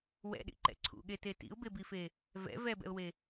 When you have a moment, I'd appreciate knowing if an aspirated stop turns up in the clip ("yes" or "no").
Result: yes